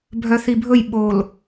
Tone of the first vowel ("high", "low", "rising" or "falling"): low